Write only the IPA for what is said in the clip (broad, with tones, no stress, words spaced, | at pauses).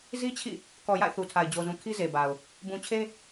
zi˦t͡ɕʰḭ˦˨ | kɔ˨ ja̰˦˨ɪ̯θu˨tʰa˨ɪ̯ d͡ʑo˨zũ˨ kʰi˦ze˨ ba˨ʊ̯ | bũ˨t͡ɕʰe˦